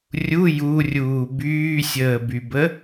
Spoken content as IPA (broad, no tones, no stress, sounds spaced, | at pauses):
rʲ u j u rʲ uː b yː sʲ əː b y b ə